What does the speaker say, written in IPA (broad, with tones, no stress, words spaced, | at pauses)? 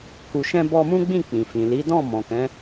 ku˨ʃɛ̃˧bɔ˧ mũ˦ɡ͡bĩ˦˨ k͡pĩ˨fĩ˨li˨˦ dɔ̃˦˨ mɔ̃˨kɛ̃˨˦